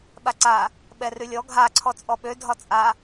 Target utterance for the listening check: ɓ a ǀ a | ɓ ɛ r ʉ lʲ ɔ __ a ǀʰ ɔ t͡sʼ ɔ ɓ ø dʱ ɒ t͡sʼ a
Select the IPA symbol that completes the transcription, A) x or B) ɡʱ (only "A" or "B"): B